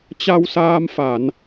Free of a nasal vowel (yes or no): yes